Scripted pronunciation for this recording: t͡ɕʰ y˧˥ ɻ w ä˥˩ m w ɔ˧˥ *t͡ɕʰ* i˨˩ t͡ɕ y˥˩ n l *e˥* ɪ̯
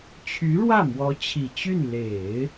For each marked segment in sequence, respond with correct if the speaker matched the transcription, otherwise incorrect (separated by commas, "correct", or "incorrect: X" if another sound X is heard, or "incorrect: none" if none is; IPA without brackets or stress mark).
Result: correct, incorrect: e˨˩˦